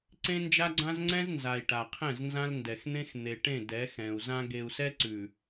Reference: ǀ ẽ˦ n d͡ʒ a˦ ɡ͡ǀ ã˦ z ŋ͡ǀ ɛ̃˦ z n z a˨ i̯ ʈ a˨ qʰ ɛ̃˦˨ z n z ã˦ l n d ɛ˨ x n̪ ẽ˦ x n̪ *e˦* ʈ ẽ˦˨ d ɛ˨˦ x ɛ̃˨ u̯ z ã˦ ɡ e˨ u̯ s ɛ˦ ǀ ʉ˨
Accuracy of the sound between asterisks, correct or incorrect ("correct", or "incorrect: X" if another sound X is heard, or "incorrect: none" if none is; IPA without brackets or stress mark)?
incorrect: e˨